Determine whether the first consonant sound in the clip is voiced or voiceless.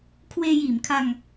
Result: voiceless